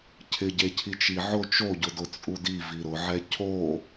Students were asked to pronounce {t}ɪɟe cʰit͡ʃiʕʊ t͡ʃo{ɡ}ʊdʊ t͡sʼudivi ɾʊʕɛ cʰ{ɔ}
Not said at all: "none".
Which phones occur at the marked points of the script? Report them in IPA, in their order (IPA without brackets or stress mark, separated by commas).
cʰ, ɟ, o